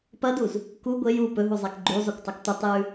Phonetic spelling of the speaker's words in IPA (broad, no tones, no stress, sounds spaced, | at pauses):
p ɐ d u z | k u ɡʷ e j u p ɵ ɦ u zˤ a k ɡ͡ǃ u zˤ ɵ kʷ tˤ ɵ k tʷ ɐ tˤ j ʉ